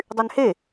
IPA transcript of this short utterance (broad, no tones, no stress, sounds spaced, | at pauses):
dˤ y n h e